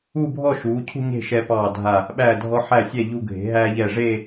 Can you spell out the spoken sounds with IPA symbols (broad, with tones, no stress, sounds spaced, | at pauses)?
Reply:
uː˥˧ bʱ ɔ˥˧ ʃ uː˩˧ cʰ ṳ˥˧ ɲ e̤˥˧ ʃ ɛ˧ p ɑː˧˩ dʱ a˧˩ | ɓ æː˧˩ dʱ ɔ˧ ħ æ˧˩ sʲ ɛ˧˩ ʎ u˧ ɡʱ e̤˩˧ ɦ æː˧ ʎ ɛ˧˩ ʐ e˥˧